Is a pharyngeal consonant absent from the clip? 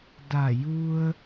yes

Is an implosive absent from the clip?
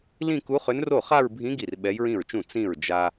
no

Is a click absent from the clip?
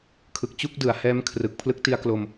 yes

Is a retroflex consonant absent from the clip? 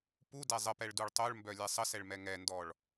no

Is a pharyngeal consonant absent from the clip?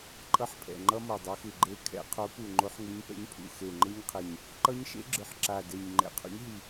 no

